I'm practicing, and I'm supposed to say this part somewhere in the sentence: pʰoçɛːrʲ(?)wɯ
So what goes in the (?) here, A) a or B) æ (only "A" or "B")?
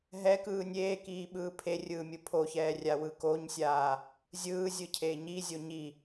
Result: A